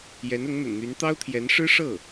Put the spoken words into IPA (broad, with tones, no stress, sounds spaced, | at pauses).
j ɛ˧˥ n ʊ˧˥ ŋ n̪ ə̰˨˩ n n̪ y˧˥ n t̪ ɑ˥ ʊ̯ t̪ʰ j ɛ˧˥ n ʂ ɻ̩˥ ʂ ɤ˥˩